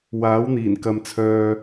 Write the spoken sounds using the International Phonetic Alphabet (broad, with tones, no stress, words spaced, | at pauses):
waː˨˥wn̪iː˨˩nkɐ˨mt͡sʰœː˨